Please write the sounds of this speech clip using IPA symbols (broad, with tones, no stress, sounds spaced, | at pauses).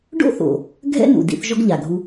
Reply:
ɖ o̰˥ θ o̰˩ | ɡʱ ɛ̰˥ n ṵ˩ d ḭ˧ θ ʒ ɔ˥ ɡ ʎ a˩ ɡʱ u˧